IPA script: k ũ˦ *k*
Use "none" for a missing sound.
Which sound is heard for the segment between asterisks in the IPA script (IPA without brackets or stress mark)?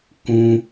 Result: none